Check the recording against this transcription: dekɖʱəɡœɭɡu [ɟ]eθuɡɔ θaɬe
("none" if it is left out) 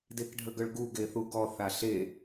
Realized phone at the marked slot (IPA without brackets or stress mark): ɡ